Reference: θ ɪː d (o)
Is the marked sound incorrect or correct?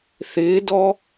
incorrect: ɔ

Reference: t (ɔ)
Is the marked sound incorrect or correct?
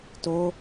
incorrect: o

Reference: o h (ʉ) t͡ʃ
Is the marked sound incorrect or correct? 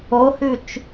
correct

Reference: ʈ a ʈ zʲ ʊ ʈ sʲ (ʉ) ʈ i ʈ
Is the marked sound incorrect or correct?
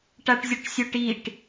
incorrect: ʊ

